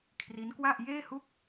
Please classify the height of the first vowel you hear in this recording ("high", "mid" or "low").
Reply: high